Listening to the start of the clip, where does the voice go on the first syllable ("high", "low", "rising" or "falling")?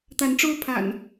rising